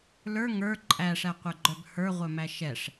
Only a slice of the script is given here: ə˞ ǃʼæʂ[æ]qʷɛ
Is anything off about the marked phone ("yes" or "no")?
no